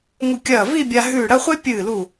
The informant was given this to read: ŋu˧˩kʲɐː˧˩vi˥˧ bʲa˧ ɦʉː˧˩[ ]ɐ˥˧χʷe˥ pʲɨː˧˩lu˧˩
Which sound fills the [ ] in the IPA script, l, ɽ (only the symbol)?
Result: ɽ